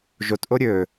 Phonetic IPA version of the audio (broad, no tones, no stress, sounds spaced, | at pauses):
ʒ o t ʔ o ɾʲ ɵ